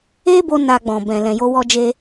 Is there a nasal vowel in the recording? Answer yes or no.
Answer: yes